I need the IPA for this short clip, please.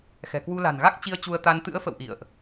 xɛ̤˨˩kwu˧ la̤˨˩nɣa˦˥k̚ t͡ɕi˧ə̯t͡ɕu˧ə̯t̪a˧n t̪ɨ̰˧˥ə̯fə̰˧˨w ʔḭ˧˨ə̯ʔ

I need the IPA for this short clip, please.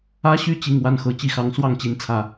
ä˦ɕy˥˨ t͡ɕi˨˩ŋ wa˥˨nxɤ˨˩ t͡ɕi˥˨xɑ˨˦ŋ swɑ˥˨ŋt͡ɕi˨˦nt͡sʰä˨˩

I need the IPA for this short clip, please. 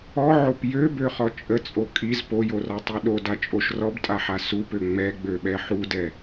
ɔʕop jøbøχɔ t͡ʃʼət͡sʼo kʼiz pojorɔtˤi ɗodat͡ʃʼoʃ rɔbtʼaħa supø ŋ͡mɛɡ͡bøɓɛ ħudɛ

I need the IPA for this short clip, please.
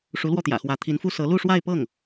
ʂu˧˥lwɔ˥˩t̪jä̰˨˩xwä˧˥ t̪ʰi˧˥nfu˥ sɤ˧˥ lu˥˧ʂwa˥˧ɪ̯pɤ˥˩ŋ

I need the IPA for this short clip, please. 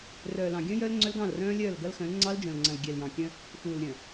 rœː˨ lɑ̃˨ɡʲœ̃˦jœ˦l ŋ͡ǀœ˦lɡɑ̃˦˨lrœ̃ː˦lʲœː˦˨l ɡɐ˦lxœ̃˨˦l ŋ͡ǀɑ˦ld͡ʒœ̃˨lŋ͡ǀɐ̃˨l ɡʲɛ˨ljɑ̃˨kʲœ̃˦ | xuː˨lɾʲœ̃˨

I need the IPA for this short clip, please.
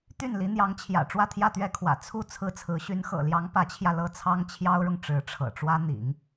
t̪y˥˩nli˧˥n̪jɑ˧˥ŋt͡ɕʰjä̰˨˩ ʈ͡ʂwä˥˧t̪ʰjä˥˩t̪ɥɛ˥kʰwä̰˨˩ t͡sʰu˥˩ t͡sʰɹ̩˥t͡sʰɹ̩˧˥ ɕy˧˥nxɤ̰˨˩ljɑ˧˥ŋ pä˧˥t͡ɕʰjä˧ lɤ˥˩t͡sʰɑ˥ŋ t͡ɕʰjɑ˥ʊ̯ɻʊ˨ŋ ʈ͡ʂɻ̩˧˥ʈ͡ʂʰɤ̰˨˩ʈ͡ʂwä˥ n̪ḭ˨˩˦ŋ

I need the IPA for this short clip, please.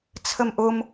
t͡sʰəmʔʊm

